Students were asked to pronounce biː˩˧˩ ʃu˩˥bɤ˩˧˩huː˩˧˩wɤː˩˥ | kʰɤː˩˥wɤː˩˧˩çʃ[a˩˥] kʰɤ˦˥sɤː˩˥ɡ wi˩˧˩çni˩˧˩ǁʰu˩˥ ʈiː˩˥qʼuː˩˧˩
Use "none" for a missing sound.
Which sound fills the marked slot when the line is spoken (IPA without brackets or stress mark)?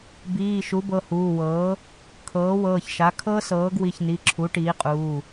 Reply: a˩˥